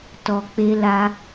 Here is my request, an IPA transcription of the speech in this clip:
t ɔ˨ k͡p e˧ l a˧

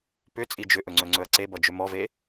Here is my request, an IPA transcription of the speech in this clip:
p ʏ t͡sʼ i d͡ʒ ʏ ʔ ɵ ŋ͡ǀ ɵ ŋ͡ǀ ɵ ɐ̯ ǀ e b ʌ d͡ʒ ʏ m ɔ v e

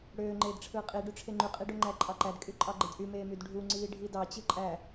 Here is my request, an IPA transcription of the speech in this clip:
ɽ øː ŋ͡ǃ eː d ʈ͡ʂʰ ɯː qʼ i ɖ y ʈ͡ʂʰ e ŋ͡ǃ y qʼ i ɖ o ŋ͡ǃ æ ǃʼ ɑ ǃ æ d kʼ y ǃʼ ɑ ɡ͡ǃ e d ʔ y m eː m y d ɖʱ u ŋ͡ǀ iː ɖʱ i d ɑ t͡ɕ ɯ ǃʼ æ

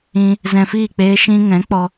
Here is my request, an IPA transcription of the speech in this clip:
ĩ˧ | z ɛ̃˧ f iː˦˨ k͡p eː˦ ʃ ĩ˧ ŋ ɛ̃˨˦ k͡p ɔ˧

